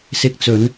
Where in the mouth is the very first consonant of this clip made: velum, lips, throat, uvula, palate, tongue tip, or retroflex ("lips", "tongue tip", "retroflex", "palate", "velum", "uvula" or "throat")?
tongue tip